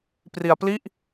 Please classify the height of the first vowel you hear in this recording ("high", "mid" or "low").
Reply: high